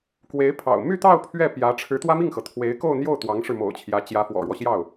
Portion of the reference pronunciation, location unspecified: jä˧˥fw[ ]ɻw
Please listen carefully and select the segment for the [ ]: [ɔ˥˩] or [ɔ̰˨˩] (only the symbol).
ɔ̰˨˩